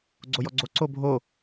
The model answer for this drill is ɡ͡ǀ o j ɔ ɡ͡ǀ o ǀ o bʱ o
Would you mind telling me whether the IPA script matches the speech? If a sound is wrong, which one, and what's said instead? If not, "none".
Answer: none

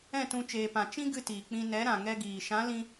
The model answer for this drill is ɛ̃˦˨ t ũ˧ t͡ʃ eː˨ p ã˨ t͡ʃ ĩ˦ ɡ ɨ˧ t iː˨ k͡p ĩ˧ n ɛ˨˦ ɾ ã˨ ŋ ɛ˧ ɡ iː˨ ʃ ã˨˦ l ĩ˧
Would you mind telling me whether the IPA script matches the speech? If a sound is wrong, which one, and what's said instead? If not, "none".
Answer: none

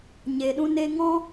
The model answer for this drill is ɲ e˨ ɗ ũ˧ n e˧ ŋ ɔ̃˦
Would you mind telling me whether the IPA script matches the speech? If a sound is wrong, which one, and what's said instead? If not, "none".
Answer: none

